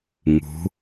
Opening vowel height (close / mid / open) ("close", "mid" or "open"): close